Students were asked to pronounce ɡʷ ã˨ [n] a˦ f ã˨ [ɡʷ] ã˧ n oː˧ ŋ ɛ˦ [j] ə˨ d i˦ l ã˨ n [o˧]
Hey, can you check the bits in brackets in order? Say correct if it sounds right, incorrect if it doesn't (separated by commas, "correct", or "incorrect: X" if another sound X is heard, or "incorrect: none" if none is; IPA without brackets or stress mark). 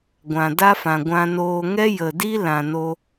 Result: incorrect: d, correct, correct, correct